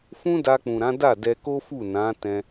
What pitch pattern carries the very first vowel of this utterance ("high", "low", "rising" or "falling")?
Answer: high